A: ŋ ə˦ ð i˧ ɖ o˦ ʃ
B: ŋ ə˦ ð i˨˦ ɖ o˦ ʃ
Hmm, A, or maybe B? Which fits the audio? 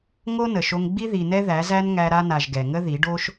B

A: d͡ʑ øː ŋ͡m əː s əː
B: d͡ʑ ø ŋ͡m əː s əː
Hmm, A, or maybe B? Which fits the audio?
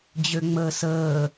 B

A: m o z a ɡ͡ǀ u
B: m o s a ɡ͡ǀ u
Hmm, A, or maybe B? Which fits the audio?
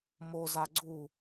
A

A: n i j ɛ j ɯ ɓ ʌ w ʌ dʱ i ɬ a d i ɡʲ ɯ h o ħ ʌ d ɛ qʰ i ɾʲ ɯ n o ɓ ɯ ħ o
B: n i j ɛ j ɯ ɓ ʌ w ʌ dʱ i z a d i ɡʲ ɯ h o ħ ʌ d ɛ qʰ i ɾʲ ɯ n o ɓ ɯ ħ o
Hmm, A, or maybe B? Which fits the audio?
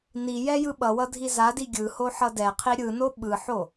B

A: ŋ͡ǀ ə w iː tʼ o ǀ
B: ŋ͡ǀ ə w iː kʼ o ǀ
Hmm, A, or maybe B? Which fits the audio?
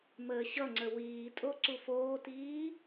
A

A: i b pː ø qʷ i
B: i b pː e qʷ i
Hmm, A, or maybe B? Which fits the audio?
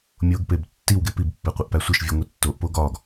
B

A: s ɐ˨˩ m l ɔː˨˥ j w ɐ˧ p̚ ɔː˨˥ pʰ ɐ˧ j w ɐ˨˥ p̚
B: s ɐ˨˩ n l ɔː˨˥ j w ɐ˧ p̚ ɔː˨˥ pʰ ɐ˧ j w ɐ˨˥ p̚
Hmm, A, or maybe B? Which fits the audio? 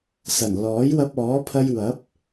B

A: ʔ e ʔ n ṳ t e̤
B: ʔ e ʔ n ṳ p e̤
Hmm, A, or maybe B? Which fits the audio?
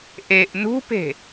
B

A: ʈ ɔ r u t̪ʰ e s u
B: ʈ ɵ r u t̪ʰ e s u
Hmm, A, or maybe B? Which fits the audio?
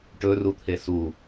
B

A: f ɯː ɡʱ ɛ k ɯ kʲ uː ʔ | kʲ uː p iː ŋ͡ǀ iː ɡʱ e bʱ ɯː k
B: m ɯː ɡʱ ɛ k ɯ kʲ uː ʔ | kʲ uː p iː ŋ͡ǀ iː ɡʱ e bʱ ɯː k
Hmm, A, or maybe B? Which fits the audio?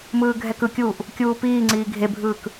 B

